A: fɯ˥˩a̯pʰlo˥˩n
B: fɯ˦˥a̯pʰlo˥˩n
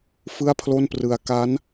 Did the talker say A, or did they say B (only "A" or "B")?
A